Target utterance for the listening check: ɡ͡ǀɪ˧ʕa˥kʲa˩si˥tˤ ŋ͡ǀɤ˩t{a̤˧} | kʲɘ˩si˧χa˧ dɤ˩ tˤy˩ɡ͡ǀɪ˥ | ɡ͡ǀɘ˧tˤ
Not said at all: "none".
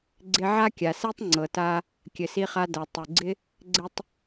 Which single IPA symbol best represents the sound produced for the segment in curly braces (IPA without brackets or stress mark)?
a˧